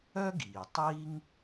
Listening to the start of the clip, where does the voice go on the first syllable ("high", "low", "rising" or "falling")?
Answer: high